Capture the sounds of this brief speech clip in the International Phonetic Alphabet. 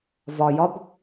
vɒjɒb

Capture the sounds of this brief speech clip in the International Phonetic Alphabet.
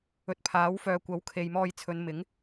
ɵ˨t̚pʰaː˨˥wfœː˨ kʷɐ˨˥wkʰe˨jmɔː˧j t͡sʰɵ˨˧nmɪ˨˥ŋ

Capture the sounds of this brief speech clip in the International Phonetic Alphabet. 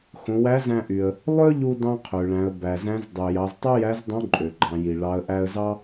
xõ˩˧wæ˧˥zæ̃˧ʔy˩ə̯ | lˠø˥ʎu˧ dɑ̃˥qʰø˩ɭæ̃˩˧ə̯ bæ˩zæ̃˧˥z dˤy˩ jɑ˩˧ztˤø˥jæ˧˥zdˤõ˧˥ ǃʼø˩ɡ͡ǃɑ̃˩˧ji˩ ɭɑ˩˧ə̯ʔæ˧ə̯zɑ˥

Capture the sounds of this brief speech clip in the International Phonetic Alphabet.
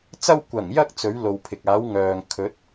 t͡sɐ˧w kʷɐ˨˩ŋjɐ˧k̚ t͡sɵ˨˥ɥlo˨wpʰɪ˨k̚ aː˨˥wŋœː˨ŋ kʰɵ˨˥t̚

